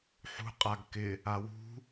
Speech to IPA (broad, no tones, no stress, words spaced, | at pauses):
ħṳ qʼaɡkɪ | awṳ